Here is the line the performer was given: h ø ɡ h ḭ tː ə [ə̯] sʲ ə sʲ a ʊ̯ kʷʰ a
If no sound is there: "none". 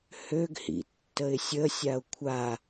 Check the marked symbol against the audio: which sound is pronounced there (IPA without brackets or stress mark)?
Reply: ɪ̯